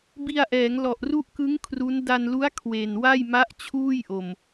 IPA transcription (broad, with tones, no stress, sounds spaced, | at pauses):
b i˧ a̯ ʔ ɛː˩˦ ŋ l ɔ˨˩ ʔ r u˦˥ ʔ k ɯ˦˥ ŋ kʰ r u˦˥ n d a˧ n l u˦˥ a̯ kʰ w e˨˩ n w a˥˩ j m a˦˥ ʔ t͡ɕʰ uː˥˩ j ʔ o˨˩ m